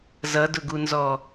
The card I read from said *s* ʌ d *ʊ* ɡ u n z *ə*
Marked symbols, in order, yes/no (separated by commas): no, yes, no